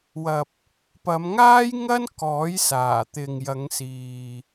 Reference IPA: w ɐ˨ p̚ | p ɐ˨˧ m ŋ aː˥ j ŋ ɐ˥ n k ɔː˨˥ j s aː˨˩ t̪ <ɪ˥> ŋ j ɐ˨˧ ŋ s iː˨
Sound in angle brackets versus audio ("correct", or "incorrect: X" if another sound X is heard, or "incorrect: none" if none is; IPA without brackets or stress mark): incorrect: ɪ˨